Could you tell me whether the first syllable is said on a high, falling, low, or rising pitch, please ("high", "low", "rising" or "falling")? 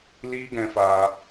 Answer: high